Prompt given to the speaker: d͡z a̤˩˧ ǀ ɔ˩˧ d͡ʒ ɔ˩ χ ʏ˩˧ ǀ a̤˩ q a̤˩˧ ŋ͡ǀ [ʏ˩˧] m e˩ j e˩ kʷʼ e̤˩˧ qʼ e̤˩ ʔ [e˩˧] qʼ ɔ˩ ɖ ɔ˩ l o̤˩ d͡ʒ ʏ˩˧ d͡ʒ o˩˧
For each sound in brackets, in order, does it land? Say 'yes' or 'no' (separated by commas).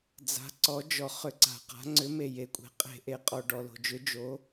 yes, no